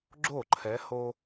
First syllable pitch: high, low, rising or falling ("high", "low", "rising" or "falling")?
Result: falling